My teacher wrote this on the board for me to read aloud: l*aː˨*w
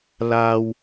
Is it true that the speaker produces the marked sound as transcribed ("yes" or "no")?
yes